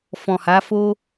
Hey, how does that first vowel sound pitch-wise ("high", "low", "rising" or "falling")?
low